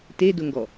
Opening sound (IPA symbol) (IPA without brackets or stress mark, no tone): t